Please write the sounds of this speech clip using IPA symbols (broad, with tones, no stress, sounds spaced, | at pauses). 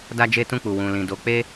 d a˦ d͡ʒ e˦ t ũ˦˨ k͡p u˨ w ũ˨ l ĩ˨ d o˨˦ k͡p e˦